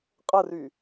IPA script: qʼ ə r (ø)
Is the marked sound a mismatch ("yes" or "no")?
yes